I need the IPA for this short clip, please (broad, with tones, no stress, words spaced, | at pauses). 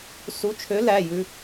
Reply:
su˨˥t͡ʃʰø˨˥ læ˩˧˩jʉ˧